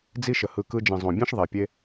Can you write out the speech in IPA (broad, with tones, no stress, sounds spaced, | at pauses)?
d͡z i˧ ʃ ə˨ h ɯ˨ k ɯ˧ d͡ʒ ĩ˨ zˤ õ˨ bʲ ẽ˦ ʃ ðˤ e˨ pʲ e˧